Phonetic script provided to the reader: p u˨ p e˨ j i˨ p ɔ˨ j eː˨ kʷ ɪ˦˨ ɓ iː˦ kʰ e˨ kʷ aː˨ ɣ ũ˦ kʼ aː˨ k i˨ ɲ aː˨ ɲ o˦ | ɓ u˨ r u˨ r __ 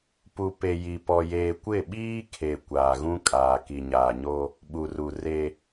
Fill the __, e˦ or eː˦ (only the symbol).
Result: e˦